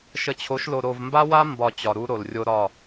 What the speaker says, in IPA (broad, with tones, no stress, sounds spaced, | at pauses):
ʃ ə˨ t͡ɕʰ o˨˦ ʃ l o˨ ɾ o˨ v m b a˦ w a˦ m b ɒ˨ t͡ɕ ɒ˨ ɾ u˦ ɾ o˨ l rʲ o˦ ɾ ɒ˦˨